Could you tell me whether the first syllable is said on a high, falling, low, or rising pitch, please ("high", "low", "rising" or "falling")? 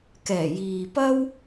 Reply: low